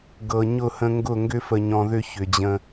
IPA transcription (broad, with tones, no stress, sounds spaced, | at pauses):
ɡ ɤ˨ ɲ ʊ˦˨ h ə̃˧ ŋ ɡ ʊ˦˨ ŋ ɡ ʏ˦ f ə˨ ɲ ɔ̃˨ ð ʏ˧ ç ʏ˨ d͡ʑ ə̃˧